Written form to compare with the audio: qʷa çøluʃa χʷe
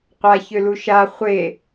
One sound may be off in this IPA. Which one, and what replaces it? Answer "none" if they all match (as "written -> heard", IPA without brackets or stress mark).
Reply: none